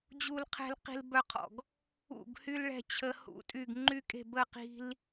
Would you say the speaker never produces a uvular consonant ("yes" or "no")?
no